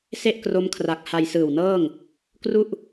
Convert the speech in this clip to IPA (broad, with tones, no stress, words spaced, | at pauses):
se˥˩ʔkro˦˥mkʰra˨˩k̚ ha˧jsɯː˨˩wnɤː˥˩ŋ | kru˥˩ʔ